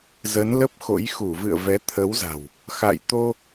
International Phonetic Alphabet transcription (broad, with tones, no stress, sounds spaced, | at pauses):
z ə˨˦ n l ə˦˥ p̚ x o̰˧˥ j x u˧˩ v ɨ̰˧˨ ə̯ v ɛ˨˦ t̪ʰ ə˨˦ w z a̤˨˩ w | x a̰˧˨ j t̪ o˧